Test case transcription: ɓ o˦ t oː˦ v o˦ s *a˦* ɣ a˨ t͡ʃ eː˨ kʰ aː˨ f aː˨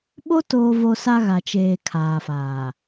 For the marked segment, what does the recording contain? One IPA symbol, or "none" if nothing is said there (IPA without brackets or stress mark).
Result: a˦